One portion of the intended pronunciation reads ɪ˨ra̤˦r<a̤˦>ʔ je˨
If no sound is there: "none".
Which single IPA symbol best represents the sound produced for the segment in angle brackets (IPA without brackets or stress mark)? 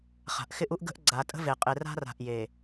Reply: a̤˨